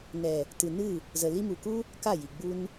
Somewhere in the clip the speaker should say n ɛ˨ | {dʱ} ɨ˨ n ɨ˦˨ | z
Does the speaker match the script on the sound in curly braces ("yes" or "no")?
no